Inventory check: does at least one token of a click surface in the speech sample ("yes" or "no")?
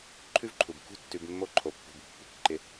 yes